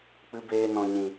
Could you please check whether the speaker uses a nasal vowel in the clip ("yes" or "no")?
yes